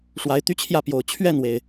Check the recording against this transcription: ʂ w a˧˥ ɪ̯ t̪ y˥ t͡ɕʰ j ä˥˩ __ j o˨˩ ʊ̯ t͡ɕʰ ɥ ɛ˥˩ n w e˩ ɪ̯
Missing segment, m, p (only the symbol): p